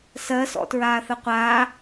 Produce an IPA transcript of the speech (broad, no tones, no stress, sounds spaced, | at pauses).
s ɜ s ɔ̰ t ɹ aː θ ə qʷ aː